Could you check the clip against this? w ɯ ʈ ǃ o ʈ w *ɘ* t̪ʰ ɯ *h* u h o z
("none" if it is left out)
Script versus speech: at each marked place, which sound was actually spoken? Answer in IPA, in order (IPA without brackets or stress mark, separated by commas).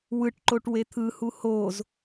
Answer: e, h